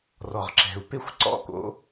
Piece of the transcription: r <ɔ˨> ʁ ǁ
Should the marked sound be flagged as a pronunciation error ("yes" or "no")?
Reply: no